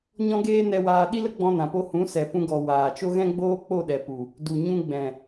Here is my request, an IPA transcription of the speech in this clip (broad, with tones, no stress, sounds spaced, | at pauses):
ɲ ɔ̃˦ ɡ eː˦ n ɛ˧ w aː˧ ɗ i˦ l ə˦ ɡ͡b ɔ̃˧ n ã˨ p o˧ h ũ˨˦ s ɛ˨ p ũ˧ ɡ ɔ˨ w aː˨ t͡ʃ o˦ ɣ ɛ̃˦ ɡ͡b oː˦ k͡p o˦˨ ɗ ɛ˨ p u˨ | d u˨ ɲ ũ˧ ɡ͡b ɛ̃˨